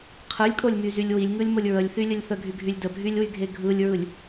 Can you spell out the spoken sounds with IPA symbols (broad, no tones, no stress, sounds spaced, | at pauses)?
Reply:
qʰ ɯ lʲ kʼ o lʲ m y z y lʲ w i lʲ ŋ ɯ lʲ m o lʲ ɹ ə lʲ θ y lʲ ə lʲ θ ə ɡʱ y ɡʱ y lʲ d ə bʱ y lʲ w y ɡʱ e ɡʱ ɯ lʲ ɹ ɯ lʲ